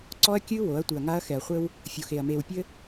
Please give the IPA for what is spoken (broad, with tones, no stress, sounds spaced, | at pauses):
ǀ ɔ˦ ɐ̯ kʲ ɨ˦ w o˨˦ ɐ̯ tʷ ɨ˨ ɐ̯ ŋ a˦ ɐ̯ x ɛ˨ ɐ̯ χʷ ɘ˦ w | fʲ o˨ x e˨ ɐ̯ m e˨ w pʲ ɘ˦